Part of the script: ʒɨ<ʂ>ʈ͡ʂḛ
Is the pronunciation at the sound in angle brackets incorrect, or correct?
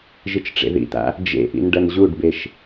incorrect